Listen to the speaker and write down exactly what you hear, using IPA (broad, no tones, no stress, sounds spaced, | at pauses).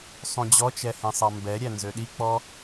sˤ ũ d͡ʑ ɔ t͡ʃ ɛ h ẽ sˤ ɑ m b ɛ ɾʲ æ n z ø ɗ i k͡p ɔ